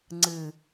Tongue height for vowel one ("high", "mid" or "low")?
high